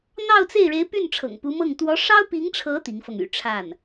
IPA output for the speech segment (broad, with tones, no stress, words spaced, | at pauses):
n̪ɑ˥˧ʊ̯t͡se˥˩ɪ̯ɻe˧˥ɪ̯py˥˩n ʈ͡ʂʰɤ̰˨˩ŋpu˧˥mɤ˥˩ŋ t̪wɔ˧˥ʂɑ˥ʊ̯pi˧˥ŋʈ͡ʂʰɤ˧˥ t̪i˧˥ŋfɤ˧ŋ y̰˨˩ʈ͡ʂʰa˥˩n